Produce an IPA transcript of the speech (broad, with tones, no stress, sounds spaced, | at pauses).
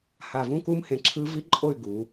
h a˨ v ũ˦ k u˦ m h ẽ˨ ǁʰ ɯ˦ v i˦ ǃʼ o˦˨ y̯ ɡ u˨˦